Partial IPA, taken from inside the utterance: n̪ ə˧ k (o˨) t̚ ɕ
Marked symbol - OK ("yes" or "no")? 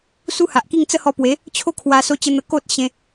no